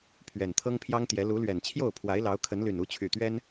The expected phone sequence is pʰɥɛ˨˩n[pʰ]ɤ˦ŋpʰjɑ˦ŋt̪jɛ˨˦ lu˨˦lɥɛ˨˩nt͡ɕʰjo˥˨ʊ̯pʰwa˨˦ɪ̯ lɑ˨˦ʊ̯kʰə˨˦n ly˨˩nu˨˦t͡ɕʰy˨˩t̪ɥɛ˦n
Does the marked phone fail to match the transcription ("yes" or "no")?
yes